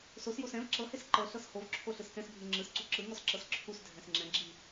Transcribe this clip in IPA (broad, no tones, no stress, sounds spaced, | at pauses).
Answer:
s o s j o s ɛ̃ v ǁ ɤ h e s ǃ ɤ ɬ ɤ s h o v ǁʰ o ɬ ɯ s k ɛ̃ s bʱ ɯ ŋ͡ǁ ɯ s ǀ u ǁ ɯ ŋ ɔ s ǁ ɤ s ǁʰ u s dʱ ɛ̃ s ŋ͡ǁ ɛ̃ ɡ͡ǁ i